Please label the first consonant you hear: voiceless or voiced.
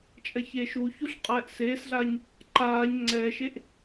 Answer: voiceless